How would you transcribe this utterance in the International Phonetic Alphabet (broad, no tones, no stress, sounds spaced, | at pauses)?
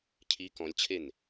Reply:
cʰ i k ɔ̃ lʲ t͡ɕʰ e n